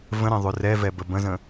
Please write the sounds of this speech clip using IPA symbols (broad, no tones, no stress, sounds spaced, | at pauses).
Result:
v ə̃ ɾ ẽ ðˤ ʉ r ɛ v ɛ b ə b ə̃ z ə̃